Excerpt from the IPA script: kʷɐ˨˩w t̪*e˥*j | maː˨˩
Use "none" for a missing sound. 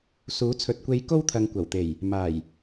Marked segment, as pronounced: e˨˩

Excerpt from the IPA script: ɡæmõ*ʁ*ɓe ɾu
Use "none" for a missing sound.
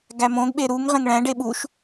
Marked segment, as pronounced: ɡ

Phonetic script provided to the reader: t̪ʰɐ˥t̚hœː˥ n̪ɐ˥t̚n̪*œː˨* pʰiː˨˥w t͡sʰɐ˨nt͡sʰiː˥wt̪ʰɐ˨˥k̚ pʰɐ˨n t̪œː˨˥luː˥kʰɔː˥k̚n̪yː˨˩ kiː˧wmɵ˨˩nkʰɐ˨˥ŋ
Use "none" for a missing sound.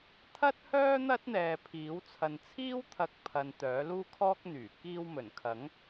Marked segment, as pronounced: ɛː˨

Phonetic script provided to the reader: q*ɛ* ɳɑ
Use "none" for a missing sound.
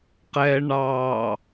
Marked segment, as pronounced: ɛ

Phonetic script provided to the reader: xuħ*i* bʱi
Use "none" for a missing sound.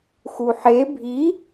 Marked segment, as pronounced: e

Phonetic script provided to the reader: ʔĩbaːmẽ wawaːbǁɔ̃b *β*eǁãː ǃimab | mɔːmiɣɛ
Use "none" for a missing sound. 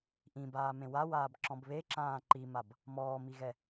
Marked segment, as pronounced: β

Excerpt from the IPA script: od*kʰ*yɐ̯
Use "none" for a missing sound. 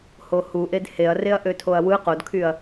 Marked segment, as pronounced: kʰ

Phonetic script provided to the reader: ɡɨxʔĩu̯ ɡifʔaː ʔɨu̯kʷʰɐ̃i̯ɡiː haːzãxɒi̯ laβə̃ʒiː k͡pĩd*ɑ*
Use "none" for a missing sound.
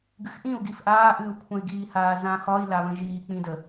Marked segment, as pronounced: ə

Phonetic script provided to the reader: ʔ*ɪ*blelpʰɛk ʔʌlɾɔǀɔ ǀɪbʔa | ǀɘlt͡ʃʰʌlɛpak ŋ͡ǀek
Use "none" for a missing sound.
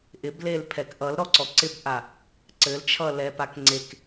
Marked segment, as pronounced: ɪ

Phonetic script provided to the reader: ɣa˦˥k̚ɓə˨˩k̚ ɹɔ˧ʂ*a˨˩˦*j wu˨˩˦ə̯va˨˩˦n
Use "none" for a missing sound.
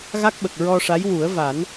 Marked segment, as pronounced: a˧˥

